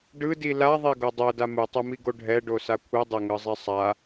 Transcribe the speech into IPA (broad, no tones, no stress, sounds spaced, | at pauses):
ɖ ɯ d i l a ðˤ e ɡ o dˤ o d a m ɯ tˤ ɯ m i ɡ o ɖʱ ɛ ɖ o s a kʷʰ ɯ dˤ e ŋ ɯ zˤ i sˤ a